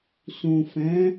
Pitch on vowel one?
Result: low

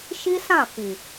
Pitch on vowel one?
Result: high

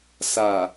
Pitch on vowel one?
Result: low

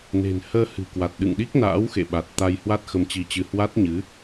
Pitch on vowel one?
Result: low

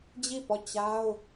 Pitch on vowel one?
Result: falling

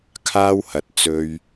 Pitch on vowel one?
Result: high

